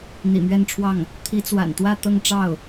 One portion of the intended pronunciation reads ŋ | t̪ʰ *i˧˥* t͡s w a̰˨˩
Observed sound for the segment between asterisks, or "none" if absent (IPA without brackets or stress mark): i˧˥